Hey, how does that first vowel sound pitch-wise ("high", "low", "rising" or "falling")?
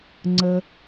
high